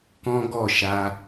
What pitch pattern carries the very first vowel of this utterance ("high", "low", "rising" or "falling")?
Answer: high